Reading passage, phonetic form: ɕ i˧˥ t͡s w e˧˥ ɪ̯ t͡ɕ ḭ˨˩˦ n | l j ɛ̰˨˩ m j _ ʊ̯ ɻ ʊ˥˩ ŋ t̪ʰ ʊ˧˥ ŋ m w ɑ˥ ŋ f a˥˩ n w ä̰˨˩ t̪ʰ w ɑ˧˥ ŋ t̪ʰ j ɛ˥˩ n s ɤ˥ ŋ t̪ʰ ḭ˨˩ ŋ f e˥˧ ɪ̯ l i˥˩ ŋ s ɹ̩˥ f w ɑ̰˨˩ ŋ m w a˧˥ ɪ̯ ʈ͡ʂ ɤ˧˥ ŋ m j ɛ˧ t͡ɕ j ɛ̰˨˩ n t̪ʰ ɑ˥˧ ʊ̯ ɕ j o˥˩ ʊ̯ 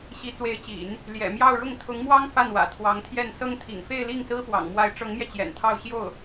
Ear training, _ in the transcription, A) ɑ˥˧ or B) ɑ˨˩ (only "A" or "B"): A